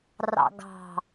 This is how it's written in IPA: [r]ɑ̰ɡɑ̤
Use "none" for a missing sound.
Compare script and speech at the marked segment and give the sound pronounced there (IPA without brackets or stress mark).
r